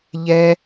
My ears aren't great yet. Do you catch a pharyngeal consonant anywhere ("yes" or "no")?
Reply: no